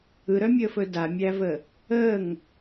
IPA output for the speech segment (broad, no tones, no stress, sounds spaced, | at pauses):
ɯ ɾ œ mʲ əː f ɵ d a mʲ æ v ə | əː ŋ